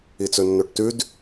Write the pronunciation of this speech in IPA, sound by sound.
i t͡s ɵ nː o ʈ t ʉ d

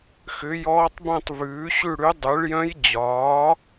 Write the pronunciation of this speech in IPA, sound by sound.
x ʏ˩˥ j ɔː˧˥ tˤ b œ̃˥˨ tˤ v ʉː˩˥ ɕ ʉ˥˨ ɽ ʉ˧˥ dˤ ʉ˩˥ ɭ j œ̃˧˥ j d͡ʑ ɒː˩˥

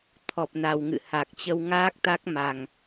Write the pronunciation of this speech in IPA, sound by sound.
t̪ʰ ɔ˨˩ p̚ n a˨˩ w ŋ ɨ̰˧˨ h a˨˩ k̚ t͡ɕ ə˧ w ŋ aː˦˥ k̚ t̪ a˦˥ k̚ m a˨˩ ŋ

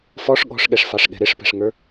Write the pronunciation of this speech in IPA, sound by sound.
f ɔ ʂ ɠ ɔ̤ ʂ ɠ ɛ ʂ f ɑ ʂ ɠ ɛ̤ ɾ ɪ ʂ p ɛ̤ ʂ ŋ ə˞

